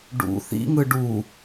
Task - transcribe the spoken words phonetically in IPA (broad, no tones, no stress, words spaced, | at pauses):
ɖṵ θḭ ŋɯɖu